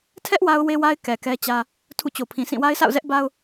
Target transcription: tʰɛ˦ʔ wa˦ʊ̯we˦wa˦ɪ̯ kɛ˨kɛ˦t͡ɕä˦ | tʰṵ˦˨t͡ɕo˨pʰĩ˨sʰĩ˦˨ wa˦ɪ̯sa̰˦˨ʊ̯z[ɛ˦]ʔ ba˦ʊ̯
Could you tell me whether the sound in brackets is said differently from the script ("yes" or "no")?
no